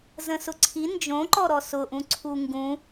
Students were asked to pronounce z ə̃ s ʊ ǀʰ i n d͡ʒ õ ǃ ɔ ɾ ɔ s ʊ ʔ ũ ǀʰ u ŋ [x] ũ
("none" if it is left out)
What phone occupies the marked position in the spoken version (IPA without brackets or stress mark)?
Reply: ɡ